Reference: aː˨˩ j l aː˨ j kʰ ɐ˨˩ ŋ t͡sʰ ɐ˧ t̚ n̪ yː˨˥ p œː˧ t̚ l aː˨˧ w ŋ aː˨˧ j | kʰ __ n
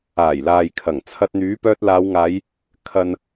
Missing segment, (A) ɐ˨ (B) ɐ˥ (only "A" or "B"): A